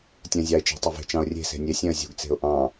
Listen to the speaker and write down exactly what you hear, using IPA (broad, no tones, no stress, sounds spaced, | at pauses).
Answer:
tʲ ɛ̃ zʲ ɑ ɪ̯ t͡ʃ e̤ tˤ ɐ v e̤ t͡ʃ ɑ̃ ʊ̯ rʲ e̤ s e̤ nʲ e sʲ ɛ̃ ə̯ zʲ ṳ ɡ t͡s e̤ ʊ̯ ʔ ɑ̃